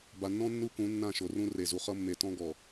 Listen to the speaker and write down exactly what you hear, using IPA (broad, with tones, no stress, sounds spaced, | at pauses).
b a˨ nː ɔ̃˦ nː u˦ k ũ˨˦ nː ã˦˨ ʃ o˨ r ũ˦ r e˨ z u˨ χ ʌ˦ mː e˨ t ɔ̃˦ ɡ ɔ˨